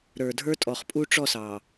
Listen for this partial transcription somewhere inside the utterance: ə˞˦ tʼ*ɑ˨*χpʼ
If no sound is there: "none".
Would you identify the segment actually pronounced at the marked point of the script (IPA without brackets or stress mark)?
ɔ˨